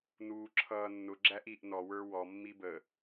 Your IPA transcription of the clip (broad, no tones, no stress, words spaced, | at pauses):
nuːǁʰʌːnːʊ ɡ͡ǁæʔiʔ nɔ wə˞wɔ mːibə